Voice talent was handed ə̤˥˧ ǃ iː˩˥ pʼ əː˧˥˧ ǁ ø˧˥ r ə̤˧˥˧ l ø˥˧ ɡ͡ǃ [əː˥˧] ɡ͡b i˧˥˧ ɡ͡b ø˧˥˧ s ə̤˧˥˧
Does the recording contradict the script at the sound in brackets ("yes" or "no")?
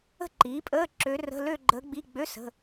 yes